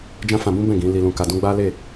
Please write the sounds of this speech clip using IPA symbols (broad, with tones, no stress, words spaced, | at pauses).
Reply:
d͡ʒã˦fã˧bũ˦bɛ̃˦˨ ɡĩ˨˦ li˧lũ˧ka˧dũ˦ ɡ͡ba˦le˦˨